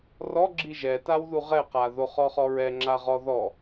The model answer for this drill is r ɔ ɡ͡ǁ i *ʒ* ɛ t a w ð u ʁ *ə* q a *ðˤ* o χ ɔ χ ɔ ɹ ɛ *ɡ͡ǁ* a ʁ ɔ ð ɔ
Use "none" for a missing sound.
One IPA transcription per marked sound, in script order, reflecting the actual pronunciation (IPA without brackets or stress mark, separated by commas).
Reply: ʒ, ɛ, ð, ŋ͡ǁ